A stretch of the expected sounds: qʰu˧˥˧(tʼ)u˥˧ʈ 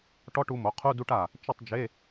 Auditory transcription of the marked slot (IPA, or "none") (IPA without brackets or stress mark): d